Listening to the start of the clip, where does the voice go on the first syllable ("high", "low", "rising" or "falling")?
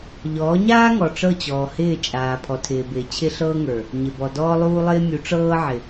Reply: rising